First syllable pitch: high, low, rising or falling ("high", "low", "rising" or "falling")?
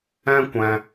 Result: high